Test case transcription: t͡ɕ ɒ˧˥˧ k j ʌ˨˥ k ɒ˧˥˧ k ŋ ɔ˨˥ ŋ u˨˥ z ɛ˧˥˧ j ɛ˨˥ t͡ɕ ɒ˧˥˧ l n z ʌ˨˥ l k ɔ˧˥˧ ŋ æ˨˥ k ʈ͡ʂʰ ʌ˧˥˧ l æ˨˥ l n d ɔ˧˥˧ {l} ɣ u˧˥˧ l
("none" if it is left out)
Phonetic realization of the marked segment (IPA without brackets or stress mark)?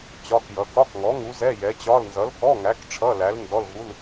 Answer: l